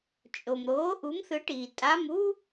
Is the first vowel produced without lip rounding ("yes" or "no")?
no